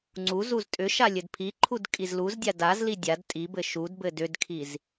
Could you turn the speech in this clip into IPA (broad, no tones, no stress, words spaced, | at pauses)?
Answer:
ŋ͡ǀuz uztʼʏʃa lʲɘdpʰiǃʰud kʼizluzdʲa dazli dʲad tʼibɘ ʃudbɘ dʏdkʰiz